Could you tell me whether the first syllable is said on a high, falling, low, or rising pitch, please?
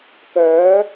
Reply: rising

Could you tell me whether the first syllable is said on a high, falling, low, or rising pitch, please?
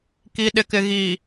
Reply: low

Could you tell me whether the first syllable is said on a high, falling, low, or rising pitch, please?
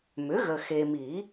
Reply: rising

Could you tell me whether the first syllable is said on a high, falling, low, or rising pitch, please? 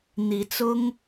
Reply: rising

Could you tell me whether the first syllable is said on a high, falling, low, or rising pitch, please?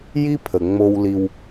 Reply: high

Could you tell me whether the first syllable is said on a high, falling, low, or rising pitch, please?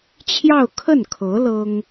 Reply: falling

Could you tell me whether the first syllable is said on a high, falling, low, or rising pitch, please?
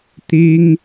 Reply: high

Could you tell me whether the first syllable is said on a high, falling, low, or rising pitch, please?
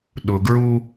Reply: low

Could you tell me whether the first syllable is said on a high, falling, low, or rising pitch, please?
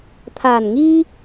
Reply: low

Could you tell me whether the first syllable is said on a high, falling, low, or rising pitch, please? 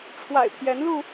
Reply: low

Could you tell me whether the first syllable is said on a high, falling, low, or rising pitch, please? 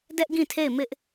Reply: high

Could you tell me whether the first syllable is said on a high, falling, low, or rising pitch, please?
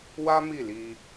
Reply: high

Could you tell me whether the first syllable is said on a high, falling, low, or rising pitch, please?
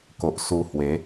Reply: low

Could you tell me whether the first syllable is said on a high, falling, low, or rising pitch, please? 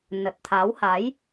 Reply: low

